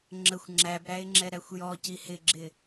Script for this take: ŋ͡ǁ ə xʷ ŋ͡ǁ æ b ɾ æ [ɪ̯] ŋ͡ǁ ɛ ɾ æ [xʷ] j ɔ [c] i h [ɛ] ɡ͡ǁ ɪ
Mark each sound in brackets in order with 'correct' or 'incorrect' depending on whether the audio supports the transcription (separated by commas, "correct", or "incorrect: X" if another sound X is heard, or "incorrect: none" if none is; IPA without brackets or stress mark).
correct, correct, correct, incorrect: ɪ